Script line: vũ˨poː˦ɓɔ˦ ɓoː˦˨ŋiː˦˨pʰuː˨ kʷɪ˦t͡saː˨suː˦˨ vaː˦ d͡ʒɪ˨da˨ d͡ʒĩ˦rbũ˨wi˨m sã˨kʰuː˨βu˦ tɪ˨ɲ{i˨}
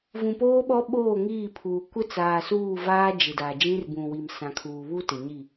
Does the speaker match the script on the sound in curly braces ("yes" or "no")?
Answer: no